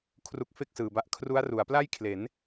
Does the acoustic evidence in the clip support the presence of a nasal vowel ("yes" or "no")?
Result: no